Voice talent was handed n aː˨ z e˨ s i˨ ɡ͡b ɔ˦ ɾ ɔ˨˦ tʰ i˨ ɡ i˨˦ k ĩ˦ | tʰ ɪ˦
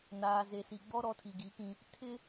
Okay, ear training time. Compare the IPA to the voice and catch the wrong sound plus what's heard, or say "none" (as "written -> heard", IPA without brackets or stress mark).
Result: none